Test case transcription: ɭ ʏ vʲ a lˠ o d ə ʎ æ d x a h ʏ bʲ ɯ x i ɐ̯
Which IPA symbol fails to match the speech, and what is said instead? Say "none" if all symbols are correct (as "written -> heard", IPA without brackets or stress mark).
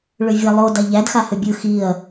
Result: ə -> a